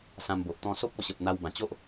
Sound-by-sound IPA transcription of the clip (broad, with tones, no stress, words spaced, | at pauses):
sã˧mbo˨ʔ t̪ɔ̃˧so˦p̚ɔ˧ɕə˨p̚ n̪a˧wbã˨˩t͡ɕo˦ʔ